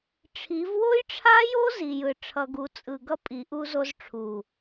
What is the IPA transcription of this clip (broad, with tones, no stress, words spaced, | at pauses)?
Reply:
ʈ͡ʂʰi˨˦v wo˦jʈ͡ʂʰa˦jo˦ zi˨jɯ˨ ʈ͡ʂʰʌ˨ɡu˨˦ t͡sʼɯ˨ɡʌ˦ pʼi˨˦ʔu˦zo˦z ʈ͡ʂʰu˨